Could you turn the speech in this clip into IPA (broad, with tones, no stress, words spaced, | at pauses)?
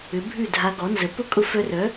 ʏ˩˥ bʱʉ˥˩dʱa˧ ɡɔ˩˥nzə˩˥ pʊ˥ kʼʊ˧fœ˧rœ˩˥